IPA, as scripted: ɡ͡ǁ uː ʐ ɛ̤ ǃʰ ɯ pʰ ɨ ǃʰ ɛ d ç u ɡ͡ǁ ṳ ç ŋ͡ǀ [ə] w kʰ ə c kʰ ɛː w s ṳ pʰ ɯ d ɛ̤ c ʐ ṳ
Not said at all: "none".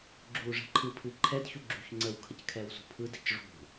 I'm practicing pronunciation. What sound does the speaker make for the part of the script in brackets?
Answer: ə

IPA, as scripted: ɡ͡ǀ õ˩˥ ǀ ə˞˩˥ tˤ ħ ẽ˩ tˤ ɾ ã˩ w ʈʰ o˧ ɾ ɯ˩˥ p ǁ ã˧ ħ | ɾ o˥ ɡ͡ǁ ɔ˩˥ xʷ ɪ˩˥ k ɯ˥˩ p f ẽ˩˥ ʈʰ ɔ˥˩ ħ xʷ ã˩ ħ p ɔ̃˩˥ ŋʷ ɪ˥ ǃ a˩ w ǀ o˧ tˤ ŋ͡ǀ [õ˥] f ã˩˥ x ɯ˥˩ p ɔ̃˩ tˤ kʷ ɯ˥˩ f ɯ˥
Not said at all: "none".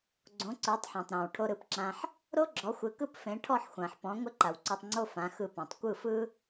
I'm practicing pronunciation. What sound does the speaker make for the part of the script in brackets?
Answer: o˥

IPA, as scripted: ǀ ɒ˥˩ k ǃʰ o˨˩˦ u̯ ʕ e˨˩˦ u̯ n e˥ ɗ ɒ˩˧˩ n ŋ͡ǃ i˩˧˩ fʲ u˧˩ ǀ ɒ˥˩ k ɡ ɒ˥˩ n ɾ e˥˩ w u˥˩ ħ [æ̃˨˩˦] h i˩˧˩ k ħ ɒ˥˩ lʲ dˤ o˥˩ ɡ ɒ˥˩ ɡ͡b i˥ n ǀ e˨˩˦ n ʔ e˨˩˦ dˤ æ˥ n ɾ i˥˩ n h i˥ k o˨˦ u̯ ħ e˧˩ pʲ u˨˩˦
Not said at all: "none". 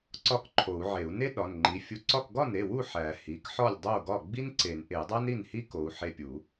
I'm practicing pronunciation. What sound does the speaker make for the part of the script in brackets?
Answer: æ˨˩˦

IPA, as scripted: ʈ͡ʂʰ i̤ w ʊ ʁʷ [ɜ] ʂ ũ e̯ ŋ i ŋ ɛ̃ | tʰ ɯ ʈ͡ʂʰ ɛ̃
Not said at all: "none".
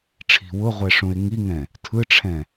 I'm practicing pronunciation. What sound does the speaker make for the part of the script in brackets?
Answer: ɛ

